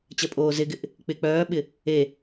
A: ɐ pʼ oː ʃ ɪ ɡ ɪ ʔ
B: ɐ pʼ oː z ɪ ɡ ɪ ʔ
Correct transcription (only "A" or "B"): B